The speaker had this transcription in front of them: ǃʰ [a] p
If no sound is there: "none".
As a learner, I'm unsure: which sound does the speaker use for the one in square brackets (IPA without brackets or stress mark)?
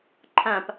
ã